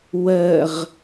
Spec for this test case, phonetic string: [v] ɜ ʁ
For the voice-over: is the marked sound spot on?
no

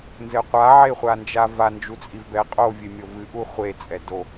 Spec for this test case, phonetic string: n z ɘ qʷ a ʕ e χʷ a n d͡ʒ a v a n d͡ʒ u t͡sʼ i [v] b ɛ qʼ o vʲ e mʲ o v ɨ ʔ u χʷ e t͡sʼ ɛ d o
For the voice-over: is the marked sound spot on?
yes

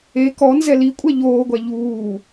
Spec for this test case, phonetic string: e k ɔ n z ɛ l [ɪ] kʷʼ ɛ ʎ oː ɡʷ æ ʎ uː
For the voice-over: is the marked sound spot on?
no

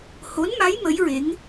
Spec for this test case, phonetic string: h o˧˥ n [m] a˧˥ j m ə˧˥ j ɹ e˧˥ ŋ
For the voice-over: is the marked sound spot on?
yes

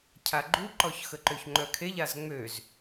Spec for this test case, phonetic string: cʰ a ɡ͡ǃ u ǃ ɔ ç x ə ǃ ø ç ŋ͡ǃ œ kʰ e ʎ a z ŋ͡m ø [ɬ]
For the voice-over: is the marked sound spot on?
no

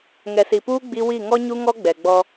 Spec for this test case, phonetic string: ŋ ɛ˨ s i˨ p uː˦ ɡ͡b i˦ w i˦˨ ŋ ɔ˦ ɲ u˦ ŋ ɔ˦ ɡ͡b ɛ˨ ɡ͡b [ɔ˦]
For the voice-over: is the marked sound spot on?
yes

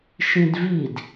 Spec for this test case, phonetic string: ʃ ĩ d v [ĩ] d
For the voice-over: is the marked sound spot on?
no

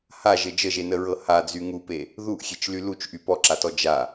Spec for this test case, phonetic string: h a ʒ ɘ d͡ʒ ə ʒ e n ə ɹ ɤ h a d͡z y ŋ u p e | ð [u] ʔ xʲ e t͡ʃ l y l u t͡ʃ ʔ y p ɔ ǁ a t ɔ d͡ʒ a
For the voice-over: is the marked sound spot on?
yes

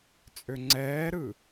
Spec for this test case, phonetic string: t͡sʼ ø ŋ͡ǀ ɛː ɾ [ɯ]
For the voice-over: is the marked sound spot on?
yes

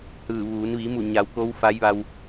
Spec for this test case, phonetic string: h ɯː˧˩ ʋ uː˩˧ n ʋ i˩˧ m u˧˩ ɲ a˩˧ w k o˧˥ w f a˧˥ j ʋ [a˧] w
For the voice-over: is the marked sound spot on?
yes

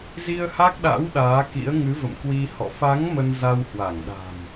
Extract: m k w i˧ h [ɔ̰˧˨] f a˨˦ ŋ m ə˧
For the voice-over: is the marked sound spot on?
yes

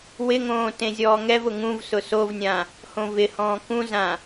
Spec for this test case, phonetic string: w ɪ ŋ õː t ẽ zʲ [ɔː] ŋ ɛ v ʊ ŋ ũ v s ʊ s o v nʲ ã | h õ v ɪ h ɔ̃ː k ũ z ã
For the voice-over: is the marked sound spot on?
yes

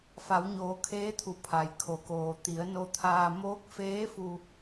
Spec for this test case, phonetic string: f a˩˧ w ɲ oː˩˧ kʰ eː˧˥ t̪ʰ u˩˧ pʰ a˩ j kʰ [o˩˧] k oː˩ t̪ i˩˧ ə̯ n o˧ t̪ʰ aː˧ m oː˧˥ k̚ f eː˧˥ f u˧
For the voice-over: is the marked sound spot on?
yes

